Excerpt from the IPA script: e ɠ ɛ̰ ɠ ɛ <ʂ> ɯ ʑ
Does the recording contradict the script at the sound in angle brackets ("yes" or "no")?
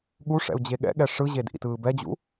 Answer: no